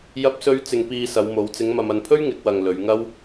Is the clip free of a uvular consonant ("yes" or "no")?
yes